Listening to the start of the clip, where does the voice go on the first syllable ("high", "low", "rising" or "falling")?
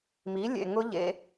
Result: rising